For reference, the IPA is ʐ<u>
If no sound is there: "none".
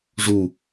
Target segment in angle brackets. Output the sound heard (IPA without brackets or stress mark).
u